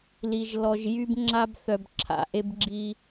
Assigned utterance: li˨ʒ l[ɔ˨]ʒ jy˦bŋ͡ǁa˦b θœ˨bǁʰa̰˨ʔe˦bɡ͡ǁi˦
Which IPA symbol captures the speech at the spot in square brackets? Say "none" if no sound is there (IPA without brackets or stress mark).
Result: ɔ˨